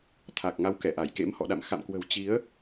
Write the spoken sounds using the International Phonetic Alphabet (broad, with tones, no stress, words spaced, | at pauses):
t̪ʰa˨˩k̚ŋa˨˦w kɛ˧˩ʔa˧˩jkḛ˧˥m hɔ̰˧˨ɗa̰˧˨m xa̰˧˨mkwə̤˨˩w t͡ɕi˨˦ə̯